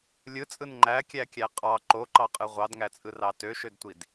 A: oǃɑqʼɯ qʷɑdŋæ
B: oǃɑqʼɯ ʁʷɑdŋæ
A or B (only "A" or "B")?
B